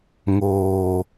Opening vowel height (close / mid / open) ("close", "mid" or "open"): mid